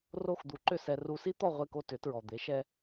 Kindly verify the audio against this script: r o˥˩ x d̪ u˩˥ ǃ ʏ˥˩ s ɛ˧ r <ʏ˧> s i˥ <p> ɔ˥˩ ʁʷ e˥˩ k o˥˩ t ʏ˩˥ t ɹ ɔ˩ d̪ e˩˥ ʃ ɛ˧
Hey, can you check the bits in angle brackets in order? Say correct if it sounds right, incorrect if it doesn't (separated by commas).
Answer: incorrect, incorrect